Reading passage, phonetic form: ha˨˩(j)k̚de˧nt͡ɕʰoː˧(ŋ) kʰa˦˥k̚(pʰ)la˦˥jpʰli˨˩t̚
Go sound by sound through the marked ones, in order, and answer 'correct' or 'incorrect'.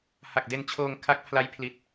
incorrect, correct, correct

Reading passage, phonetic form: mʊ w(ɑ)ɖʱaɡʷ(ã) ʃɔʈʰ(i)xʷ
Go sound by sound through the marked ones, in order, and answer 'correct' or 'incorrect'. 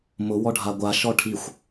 incorrect, incorrect, correct

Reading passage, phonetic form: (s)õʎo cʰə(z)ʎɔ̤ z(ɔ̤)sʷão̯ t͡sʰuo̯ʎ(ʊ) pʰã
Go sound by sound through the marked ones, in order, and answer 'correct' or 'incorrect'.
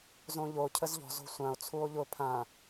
incorrect, correct, incorrect, correct

